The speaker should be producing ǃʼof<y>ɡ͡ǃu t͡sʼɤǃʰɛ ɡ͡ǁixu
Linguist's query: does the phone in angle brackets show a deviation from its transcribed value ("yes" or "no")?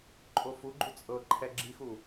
yes